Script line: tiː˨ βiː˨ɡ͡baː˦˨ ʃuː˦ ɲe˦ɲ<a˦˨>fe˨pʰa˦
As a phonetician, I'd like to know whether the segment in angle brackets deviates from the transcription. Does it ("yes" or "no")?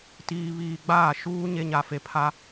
yes